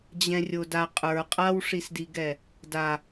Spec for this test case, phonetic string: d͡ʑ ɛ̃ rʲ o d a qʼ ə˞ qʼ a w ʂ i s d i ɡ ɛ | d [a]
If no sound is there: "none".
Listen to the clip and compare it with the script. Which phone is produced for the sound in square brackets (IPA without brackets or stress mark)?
a